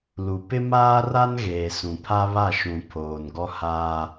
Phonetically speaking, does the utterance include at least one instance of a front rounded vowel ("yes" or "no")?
no